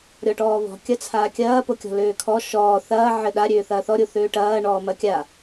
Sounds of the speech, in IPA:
ɾʲ ɔ ʈ ɔː β ɔ̤ kʲ ɐ t͡sʰ aː kʲ ɐː p o kʲ ɔ̤ l øː kʰ ɔ ʃ ɔː θ ɐː ʕ ɘ ɗ a ɾʲ øː θ ɐː θ ɔ ɾʲ o θ øː ʈ ɐː ɳ ɔː m ɐ kʲ a

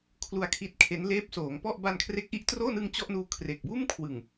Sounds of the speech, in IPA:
kʰ l u˧ a̯ kʰ i˦˥ t̚ kʰ e˦˥ n l eː˦˥ p̚ s oː˩˦ ŋ p ɔ˥˩ ʔ b a˧ n kʰ r e˦˥ k̚ ʔ i˦˥ ʔ t r oː˥˩ n ɯ˧ ŋ t͡ɕ ɔ˥˩ ʔ n uː˦˥ kʰ r e˨˩ k̚ b uː˥˩ m kʰ w ɯ˨˩ ŋ

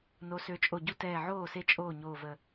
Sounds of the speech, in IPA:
n o˨˦ s ø˨˦ t͡ʃʼ o˧˩ ɟ u˦ t ɛː˧˩ ʕ oː˥˩ s e˦ t͡ʃʼ oː˥˩ ɲ oː˧˩ v ə˧˩

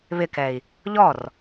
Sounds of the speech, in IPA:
β ɪ k ɛ i̯ | ʎ ɔ r

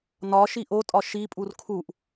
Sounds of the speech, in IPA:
n ɒ ʃ i ʔ o tʼ ɒ ʃ i pʼ u r kʰ u ʔ

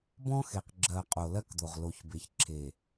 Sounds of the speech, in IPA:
b ɔ̃˦ x e˨ q ɡ͡ǁ ɜ˨ qʼ o˨ l ɜ˦ k d̪ o˨ ʁ l o˨ ç b e˨ ç ǁʰ e˨

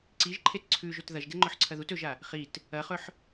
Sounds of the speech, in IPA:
ǀ i ʒ ǃʰ e t ǀʰ ʉ ʒ ɵ t ð ɐ ʒ d e ŋ͡ǃ ɵ ħ ǀʰ ɐ ð u t ɵ ʒ a | χ i t | ɐ χ ɵ ħ

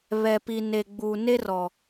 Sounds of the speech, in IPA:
β ɛ˨ p i˨ n e˨ ɡ͡b uː˨ n e˦ r ɔ˨

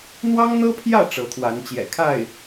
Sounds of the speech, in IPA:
n̪ w ɑ˥ ŋ n̪ ɤ˥ pʰ j ä˥˩ ʈ͡ʂ ɤ˧˥ t̪ʰ w a˧˥ n t͡ɕ j ɛ̰˨˩ kʰ a˥˩ ɪ̯

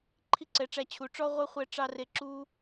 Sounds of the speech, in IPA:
ǃʰ i˦ ǀ ɛ˨˦ ʈ͡ʂ æ˧ t͡ɕʰ u˨ ʈ͡ʂ ɔ˦ ʁʷ œ˦ χʷ ɛ˦ ʈ͡ʂ ɑ˦ r e˧ ǁ u˦

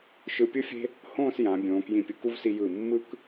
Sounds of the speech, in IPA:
ʃ ɯ˧ pʲ ɯ˥ fʲ e̤˥ | h õː˥˧ s j ã˩˧ bʲ õː˩˧ k j ĩ˧˩ pʲ ɯ˧˩ k u˥˧ v s i˧ j ɯ˧˩ mː ɯ˥ k

